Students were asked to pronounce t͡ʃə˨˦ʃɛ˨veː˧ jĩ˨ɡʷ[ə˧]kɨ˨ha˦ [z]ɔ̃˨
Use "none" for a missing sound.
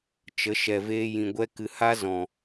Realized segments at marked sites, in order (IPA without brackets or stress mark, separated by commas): ɛ˧, z